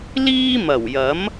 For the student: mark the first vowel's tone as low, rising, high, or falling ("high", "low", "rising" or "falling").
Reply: high